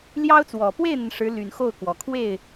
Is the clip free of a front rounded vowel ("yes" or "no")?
no